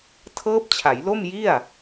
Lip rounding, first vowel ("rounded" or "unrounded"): unrounded